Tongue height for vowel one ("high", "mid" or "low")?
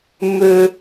mid